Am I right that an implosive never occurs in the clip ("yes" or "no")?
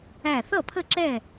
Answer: yes